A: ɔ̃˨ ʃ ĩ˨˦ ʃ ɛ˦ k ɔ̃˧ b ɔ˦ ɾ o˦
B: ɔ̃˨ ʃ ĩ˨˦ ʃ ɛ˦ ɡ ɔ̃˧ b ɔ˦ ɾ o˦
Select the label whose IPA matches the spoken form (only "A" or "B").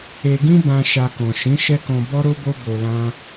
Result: A